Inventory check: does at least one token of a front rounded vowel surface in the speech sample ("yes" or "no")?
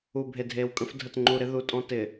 no